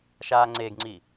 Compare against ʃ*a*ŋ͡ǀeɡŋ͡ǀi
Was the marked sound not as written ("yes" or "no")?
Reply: no